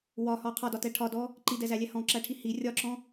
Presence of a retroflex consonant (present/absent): present